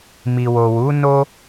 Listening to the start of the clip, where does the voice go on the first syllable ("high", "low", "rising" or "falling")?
low